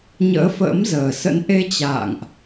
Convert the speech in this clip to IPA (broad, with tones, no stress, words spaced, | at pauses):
ɲə̰ː˧˥fə̰ː˧˥mzəː˨˩sə̰˧˥n ʔe˧t͡ɕa̰ː˧˨ŋʔ